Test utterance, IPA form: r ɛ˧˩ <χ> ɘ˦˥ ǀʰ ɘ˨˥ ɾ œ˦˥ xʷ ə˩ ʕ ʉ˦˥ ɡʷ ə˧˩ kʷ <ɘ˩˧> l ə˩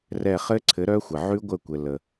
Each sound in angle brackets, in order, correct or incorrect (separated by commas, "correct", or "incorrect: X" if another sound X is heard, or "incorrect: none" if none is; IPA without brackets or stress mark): correct, incorrect: ɘ˩